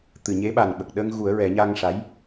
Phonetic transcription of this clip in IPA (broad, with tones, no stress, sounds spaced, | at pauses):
t̪ ɨ˨˩˨ ɲ e˧˥ ɓ a˨˩ n ɓ ə˨˩ k̚ ɗ əː˧ ŋ ɣ u˨˩˦ ə̯ ɹ ɛ˨˩˦ ɲ aː˧ ŋ ʂ a˧˥ j